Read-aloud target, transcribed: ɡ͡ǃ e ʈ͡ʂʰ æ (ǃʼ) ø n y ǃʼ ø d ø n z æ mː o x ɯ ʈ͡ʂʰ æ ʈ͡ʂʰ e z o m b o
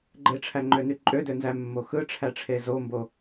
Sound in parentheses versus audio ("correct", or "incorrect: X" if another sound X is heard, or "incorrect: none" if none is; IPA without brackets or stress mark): incorrect: ŋ͡ǃ